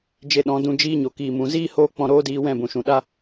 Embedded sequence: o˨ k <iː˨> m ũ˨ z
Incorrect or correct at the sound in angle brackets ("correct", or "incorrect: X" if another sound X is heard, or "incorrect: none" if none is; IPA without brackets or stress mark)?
correct